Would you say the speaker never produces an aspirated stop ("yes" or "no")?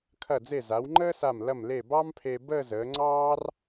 no